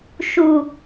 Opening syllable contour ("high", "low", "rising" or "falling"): low